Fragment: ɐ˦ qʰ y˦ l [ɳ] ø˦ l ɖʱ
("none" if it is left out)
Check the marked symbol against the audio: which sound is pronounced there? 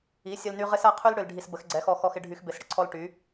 ɽ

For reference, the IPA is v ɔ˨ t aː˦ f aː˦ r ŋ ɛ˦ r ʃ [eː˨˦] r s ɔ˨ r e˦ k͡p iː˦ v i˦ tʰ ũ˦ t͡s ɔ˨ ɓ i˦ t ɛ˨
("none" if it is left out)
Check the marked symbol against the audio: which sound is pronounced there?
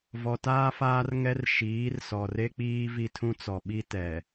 iː˨˦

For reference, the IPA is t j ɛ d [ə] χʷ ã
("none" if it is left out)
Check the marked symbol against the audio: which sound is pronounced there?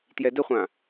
ə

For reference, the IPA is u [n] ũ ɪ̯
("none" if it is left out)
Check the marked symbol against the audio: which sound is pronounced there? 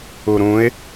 ɾ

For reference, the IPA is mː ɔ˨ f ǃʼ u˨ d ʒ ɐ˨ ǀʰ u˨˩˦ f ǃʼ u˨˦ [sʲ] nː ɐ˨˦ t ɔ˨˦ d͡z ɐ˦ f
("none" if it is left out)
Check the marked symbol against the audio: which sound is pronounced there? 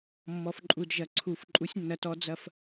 sʲ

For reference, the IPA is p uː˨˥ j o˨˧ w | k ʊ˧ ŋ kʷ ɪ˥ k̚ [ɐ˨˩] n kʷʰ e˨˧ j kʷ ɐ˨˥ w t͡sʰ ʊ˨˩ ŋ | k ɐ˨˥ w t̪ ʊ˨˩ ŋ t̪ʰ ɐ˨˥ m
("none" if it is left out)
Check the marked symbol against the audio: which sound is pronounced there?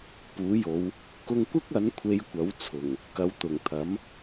ɐ˨˥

